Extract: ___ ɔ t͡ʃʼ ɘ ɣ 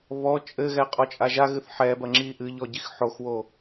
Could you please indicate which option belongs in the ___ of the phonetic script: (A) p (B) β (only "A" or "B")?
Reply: B